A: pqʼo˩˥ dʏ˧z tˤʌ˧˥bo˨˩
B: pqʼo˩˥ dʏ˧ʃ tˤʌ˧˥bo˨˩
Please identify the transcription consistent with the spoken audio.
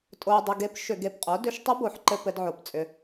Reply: B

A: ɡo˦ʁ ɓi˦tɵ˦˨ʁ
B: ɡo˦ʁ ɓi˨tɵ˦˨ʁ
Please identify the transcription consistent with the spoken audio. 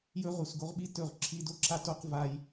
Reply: A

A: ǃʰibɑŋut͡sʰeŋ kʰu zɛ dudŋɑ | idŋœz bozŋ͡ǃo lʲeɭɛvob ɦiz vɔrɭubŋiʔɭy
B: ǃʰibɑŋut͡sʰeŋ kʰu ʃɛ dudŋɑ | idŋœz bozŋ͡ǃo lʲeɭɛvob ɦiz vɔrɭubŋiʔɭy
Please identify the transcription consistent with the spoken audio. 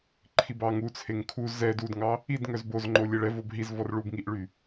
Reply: A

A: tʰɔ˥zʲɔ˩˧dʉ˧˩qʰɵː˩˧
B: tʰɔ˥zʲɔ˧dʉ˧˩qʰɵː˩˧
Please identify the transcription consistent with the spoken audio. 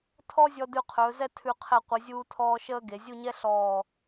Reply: B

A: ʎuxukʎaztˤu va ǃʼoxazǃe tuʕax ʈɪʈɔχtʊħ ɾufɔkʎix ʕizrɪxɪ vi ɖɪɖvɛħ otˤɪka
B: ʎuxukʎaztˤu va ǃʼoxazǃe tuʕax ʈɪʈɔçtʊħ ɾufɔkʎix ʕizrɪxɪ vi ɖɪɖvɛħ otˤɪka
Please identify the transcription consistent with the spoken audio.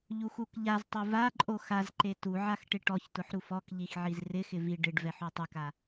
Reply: B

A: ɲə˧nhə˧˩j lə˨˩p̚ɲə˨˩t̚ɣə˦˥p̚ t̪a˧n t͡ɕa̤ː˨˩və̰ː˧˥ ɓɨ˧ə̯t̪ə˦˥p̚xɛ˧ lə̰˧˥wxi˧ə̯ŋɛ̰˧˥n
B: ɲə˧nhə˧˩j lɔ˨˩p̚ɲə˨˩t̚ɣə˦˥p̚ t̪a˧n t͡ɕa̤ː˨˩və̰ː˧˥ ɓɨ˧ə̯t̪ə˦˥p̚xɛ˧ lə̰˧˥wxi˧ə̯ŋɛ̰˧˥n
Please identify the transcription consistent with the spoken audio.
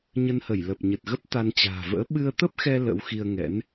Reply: A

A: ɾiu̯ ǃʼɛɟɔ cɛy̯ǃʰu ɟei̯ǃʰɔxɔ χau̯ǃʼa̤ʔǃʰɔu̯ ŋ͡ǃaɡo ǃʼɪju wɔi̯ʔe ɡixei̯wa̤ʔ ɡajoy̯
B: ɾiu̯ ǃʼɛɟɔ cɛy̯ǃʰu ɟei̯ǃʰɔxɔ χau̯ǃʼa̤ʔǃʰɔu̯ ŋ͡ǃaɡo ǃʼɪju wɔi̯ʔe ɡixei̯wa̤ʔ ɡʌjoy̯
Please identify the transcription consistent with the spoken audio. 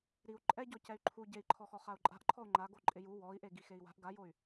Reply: A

